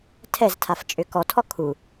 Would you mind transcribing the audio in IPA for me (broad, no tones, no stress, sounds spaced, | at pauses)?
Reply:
tʰ ɛ z tʰ a f t͡ʃʼ ʏ k ɔ tʰ ɔ kʰ u